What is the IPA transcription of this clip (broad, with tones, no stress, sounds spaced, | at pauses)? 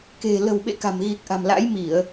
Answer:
k e̤˨˩ l ə̤˨˩ w ɓ ḛ˧˨ k a̤˨˩ m ɣ i˨˩ k̚ ʔ a̤˨˩ m l a̰˧˥ j m i˧˩˨ ə̯